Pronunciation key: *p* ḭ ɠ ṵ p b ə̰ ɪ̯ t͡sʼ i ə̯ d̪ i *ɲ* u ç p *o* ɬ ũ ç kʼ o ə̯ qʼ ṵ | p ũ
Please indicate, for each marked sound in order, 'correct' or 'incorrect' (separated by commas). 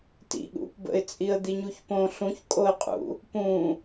incorrect, correct, incorrect